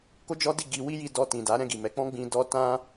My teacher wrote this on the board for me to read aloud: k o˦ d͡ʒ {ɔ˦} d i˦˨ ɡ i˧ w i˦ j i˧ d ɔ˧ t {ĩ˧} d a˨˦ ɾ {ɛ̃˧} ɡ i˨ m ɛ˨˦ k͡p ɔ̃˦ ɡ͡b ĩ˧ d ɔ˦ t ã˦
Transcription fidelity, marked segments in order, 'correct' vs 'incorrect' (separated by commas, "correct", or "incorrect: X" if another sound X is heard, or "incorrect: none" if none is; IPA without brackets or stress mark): correct, incorrect: ĩ˨, incorrect: ɛ̃˦˨